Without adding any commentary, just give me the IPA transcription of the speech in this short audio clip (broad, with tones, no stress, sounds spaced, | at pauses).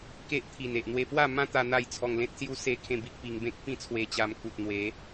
k e˦ ʔ t̪ʰ i˨˩ n e˨ ʔ n̪ w e˧ p w a˥˧ m ã˦ t̪ a˧ n̪ a˥˧ j t͡sʰ ɔ˧ ŋ l ẽ˦ t̚ s j u˦ s e˥˧ kʰ ẽ˥˧ b i˦ k̚ p i˧ ŋ b ẽ˦ k̚ p ĩ˥˧ t͡sʰ w e˧ t͡ɕ a˧ m k u˨ t̚ n̪ w e˨˦